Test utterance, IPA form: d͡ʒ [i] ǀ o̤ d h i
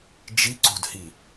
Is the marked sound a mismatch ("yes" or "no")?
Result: no